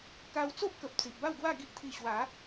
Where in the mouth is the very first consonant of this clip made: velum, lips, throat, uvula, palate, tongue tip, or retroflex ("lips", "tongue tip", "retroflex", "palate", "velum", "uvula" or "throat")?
velum